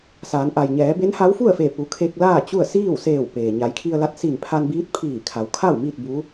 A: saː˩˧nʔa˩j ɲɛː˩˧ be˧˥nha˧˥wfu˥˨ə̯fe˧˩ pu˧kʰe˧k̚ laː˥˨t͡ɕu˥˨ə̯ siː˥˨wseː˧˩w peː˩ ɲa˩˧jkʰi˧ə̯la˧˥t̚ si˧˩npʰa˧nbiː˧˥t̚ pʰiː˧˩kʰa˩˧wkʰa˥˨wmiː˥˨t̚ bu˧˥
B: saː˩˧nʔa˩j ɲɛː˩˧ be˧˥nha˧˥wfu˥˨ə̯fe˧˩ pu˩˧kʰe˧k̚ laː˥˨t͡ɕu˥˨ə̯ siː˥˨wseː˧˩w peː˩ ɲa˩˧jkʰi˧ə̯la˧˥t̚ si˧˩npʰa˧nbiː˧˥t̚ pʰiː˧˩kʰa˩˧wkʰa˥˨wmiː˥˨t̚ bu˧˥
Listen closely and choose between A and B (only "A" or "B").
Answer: B